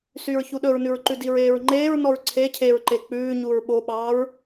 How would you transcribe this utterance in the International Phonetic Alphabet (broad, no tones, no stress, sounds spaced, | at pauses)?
s y ɹ ç u ɗ ɵ ɹ n ʉ ɹ ǃ ʉ d i ɹ eː ɹ ŋ͡ǃ eː ɹ n ɔ ɹ ǀʰ e cʰ e ɹ ǃ e k͡p ʉː ɲ u ɹ ɓ o ɓ ɑː ɹ